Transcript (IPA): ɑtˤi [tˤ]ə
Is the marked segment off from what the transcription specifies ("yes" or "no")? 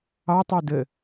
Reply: yes